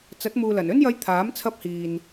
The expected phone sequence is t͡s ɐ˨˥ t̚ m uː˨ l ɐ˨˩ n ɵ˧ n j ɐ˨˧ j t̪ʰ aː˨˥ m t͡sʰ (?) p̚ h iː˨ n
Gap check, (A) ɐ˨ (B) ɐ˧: B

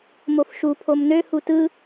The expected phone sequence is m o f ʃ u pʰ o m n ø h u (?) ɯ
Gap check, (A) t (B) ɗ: A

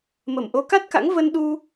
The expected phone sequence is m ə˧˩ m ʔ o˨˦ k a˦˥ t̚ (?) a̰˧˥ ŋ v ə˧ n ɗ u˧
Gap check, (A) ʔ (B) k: B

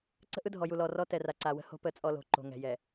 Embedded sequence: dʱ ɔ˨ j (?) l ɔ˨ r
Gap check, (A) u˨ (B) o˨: A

